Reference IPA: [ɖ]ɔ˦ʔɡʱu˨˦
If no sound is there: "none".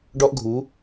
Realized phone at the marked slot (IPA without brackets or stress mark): ɖ